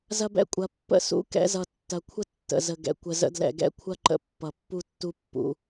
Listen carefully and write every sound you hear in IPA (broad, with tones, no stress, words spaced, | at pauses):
zɐ˦bɛ̰˦kʷʼɐ˨˦ pːə̰˦sṵ˦ kɛ̰˧zʌ˨ tːɐ˨kʷʰə˦ tːə̰˨zə˨ɡɛ̰˨ kʷə˨zə̰˧dlɛ̰˨ɡɛ̰˦ kʷʰɐ˦ǃə̰˨ pːʌ˨pːu˦tːu˦ pːṵ˧